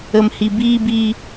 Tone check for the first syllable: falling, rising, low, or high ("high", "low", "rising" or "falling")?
low